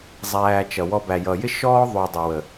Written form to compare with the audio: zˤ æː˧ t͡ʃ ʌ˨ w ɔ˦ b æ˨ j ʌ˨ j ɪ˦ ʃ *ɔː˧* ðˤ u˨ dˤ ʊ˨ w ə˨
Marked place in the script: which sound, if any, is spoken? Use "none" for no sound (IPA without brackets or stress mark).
ɔː˦